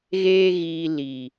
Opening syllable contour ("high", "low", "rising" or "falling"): high